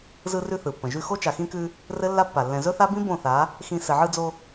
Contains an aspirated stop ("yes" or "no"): no